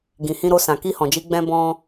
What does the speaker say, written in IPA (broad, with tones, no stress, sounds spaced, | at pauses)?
ɡ ĩ˨ h ĩ˧ ɾ o˧ s ã˨ k i˧ h ɔ̃˨ d͡ʒ i˧ ɡ͡b ɛ̃˧ b ɔ̃˧